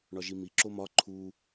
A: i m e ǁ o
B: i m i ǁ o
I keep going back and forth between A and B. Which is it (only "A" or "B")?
B